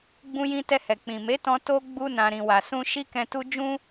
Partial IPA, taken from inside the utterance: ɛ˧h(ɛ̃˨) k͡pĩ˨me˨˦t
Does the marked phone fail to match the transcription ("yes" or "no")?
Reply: yes